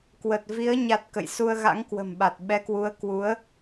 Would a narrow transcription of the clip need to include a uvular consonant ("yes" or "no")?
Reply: no